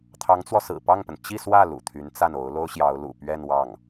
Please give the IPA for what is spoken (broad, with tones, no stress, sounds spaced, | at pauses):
t̪ʰ ɑ˧˥ ŋ t͡s w ɔ˧ s ɹ̩˨˩ p ɑ˥˩ ŋ p ə˩ n t͡ɕ i˥˧ s w ä˥˩ l ṵ˨˩ t̪ʰ y˧˥ n t͡s a˥˩ n o˧˥ ʊ̯ l o˥ ʊ̯ ɕ j ɑ˧˥ ʊ̯ l ṵ˨˩ p ɥ ɛ˥˧ n w ɑ˥˩ ŋ